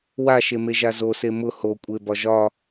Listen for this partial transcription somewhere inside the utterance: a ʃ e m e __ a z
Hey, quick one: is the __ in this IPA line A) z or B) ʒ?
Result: B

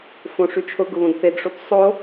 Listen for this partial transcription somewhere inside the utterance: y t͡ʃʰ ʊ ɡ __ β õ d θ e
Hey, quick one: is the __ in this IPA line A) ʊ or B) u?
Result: A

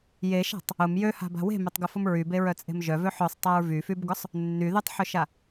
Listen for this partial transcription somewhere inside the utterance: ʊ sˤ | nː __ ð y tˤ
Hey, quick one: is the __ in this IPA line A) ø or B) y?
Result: B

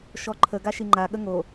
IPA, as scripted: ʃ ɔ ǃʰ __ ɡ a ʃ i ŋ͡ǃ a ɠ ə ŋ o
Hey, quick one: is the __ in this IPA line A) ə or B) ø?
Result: A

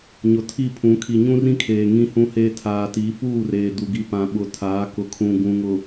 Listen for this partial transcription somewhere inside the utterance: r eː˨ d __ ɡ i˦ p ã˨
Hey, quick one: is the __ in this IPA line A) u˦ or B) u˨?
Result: B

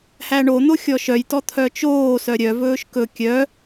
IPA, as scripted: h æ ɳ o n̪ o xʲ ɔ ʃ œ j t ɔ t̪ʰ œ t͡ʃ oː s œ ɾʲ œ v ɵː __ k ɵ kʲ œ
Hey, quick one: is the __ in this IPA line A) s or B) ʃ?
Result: B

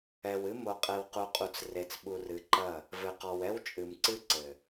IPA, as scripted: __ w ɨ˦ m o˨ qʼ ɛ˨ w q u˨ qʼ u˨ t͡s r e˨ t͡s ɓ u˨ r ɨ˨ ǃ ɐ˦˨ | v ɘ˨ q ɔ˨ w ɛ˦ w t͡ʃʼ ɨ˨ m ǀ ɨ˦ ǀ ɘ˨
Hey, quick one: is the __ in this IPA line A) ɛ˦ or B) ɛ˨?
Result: B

